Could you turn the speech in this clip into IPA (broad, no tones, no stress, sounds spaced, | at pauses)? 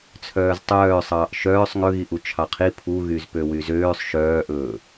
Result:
t͡sʰ œː z tˤ œː sˤ ɑː ʔ ʃ œː sˤ ŋ ɵ ɣ i ʔ u t͡ʃʰ ɑ qʰ i pʰ u ɣ y z p ø w y z øː sˤ ʃ œː ʔ ɵː